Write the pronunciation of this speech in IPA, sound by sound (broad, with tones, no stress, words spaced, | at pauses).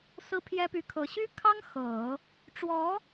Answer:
sɹ̩˥pʰjɛ˥py˧˥kʰɤ˧˥ ɕy˥kʰɑ˥ŋ xɤ˨˩˦ | ʈ͡ʂwɔ˧˥